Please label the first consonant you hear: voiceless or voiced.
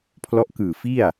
voiceless